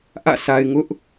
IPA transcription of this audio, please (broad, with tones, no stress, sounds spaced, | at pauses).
ʔ ä̰˦˨ sʰ a˨ ɪ̯ ŋ ʊ˦ ʔ